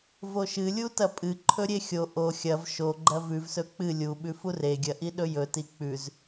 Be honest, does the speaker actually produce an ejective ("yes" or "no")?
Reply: yes